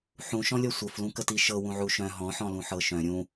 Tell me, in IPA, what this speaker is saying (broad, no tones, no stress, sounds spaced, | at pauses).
ħ ũ ʃ ɔ̃ lʲ ɔ sʷ ə f l ũ k ə t i ʃ ɤ w ũ ʕ u ʃ œ̃ ɦ ɔ̃ ħ ɔ̃ l ũ ħ ɤ ʃ œ̃ ɾʲ ũ